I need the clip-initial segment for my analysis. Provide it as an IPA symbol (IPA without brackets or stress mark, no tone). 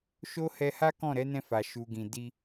ʃ